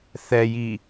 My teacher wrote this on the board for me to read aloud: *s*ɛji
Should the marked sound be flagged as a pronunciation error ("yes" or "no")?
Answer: yes